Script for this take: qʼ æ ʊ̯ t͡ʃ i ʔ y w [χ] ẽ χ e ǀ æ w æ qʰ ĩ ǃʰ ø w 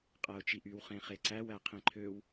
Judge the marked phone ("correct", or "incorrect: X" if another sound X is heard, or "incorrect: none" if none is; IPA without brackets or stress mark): correct